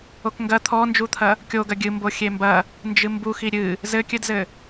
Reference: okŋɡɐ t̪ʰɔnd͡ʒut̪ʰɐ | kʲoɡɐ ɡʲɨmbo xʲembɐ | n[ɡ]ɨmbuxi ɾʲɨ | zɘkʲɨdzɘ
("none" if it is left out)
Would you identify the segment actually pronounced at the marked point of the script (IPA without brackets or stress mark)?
d͡ʒ